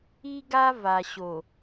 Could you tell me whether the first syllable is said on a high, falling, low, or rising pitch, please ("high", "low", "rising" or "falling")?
high